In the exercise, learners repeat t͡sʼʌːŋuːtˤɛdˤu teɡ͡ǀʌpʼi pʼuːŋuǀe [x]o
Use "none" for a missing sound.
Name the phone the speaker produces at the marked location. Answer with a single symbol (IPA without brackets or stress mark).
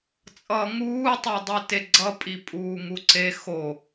x